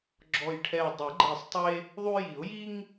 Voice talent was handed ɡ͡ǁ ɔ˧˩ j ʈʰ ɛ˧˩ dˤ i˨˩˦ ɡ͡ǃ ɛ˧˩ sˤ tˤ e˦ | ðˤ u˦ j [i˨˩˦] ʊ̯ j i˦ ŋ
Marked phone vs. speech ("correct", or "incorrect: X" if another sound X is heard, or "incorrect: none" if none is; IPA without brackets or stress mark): correct